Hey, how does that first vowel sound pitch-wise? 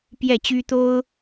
falling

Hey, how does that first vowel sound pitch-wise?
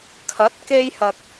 rising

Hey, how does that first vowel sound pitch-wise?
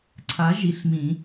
rising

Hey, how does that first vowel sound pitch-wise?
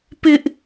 high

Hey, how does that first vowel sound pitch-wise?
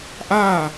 falling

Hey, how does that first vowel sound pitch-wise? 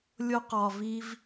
high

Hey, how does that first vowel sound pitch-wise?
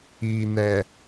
low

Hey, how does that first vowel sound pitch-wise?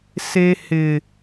high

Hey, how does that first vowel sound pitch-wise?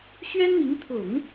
high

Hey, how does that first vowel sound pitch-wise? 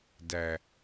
low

